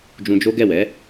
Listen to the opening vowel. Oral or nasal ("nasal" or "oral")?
nasal